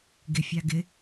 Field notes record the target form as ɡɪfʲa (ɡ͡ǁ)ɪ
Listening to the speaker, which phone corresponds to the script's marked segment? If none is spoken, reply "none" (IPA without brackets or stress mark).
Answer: ɡ